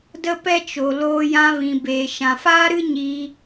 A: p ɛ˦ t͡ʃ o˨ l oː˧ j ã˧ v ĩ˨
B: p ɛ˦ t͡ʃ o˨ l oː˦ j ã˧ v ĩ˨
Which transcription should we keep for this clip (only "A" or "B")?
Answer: A